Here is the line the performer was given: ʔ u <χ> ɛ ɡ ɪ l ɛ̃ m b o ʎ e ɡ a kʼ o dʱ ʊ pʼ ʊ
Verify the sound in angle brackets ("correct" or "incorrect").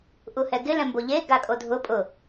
incorrect